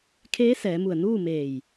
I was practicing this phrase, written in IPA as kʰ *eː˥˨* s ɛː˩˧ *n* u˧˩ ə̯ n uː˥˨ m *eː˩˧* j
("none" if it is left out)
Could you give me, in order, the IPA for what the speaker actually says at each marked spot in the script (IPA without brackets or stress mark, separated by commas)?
eː˧˥, m, eː˧˩